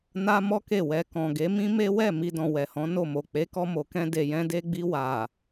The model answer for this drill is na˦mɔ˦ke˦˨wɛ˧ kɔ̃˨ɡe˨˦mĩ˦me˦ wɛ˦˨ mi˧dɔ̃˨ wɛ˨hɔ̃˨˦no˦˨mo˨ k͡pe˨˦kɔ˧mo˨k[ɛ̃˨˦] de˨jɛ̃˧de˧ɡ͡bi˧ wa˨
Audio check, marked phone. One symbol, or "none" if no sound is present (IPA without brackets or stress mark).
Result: ɛ̃˧